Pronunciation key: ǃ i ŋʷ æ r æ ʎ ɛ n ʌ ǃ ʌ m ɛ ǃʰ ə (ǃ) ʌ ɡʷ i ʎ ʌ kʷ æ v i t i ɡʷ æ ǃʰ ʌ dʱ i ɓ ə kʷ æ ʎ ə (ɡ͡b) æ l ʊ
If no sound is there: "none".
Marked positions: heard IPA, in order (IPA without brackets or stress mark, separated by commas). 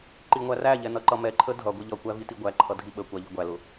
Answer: dʱ, ɡʷ